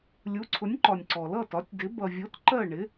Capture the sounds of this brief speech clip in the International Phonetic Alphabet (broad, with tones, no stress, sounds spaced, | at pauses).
lʲ u˩˥ ǀʰ ʊ˩˥ nʲ ǃ ɒ˩ nʲ ǀ ɔ˩ l ʌ˥˩ t ɒ˩˥ tʲ d ɪ˩˥ b ʌ˩ vʲ ʊ˩˥ t ǃ ɜ˥˩ ɳ ɪ˩˥